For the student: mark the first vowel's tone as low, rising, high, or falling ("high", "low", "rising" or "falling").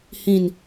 falling